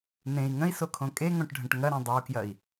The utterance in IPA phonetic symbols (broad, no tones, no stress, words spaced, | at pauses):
nẽi̯ ŋə̃i̯sokʰõ kʼeŋõʈɖʱə̃ʈ ŋɐɾẽ dˤəu̯kjɐi̯